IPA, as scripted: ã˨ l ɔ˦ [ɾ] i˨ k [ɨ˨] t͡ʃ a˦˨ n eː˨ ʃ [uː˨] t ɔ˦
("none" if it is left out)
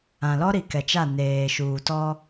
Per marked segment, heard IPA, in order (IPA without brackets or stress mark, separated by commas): ɾ, ɛ˨, uː˨